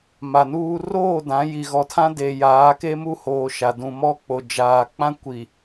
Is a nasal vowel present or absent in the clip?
present